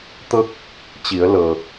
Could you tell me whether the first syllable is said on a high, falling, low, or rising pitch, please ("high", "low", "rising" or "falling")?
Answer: falling